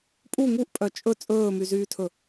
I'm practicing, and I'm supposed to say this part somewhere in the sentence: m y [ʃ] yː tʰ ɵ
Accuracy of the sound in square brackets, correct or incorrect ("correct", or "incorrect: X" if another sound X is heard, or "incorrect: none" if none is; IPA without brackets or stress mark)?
incorrect: z